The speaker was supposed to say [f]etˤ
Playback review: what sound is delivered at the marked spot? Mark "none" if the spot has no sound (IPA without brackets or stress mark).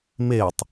m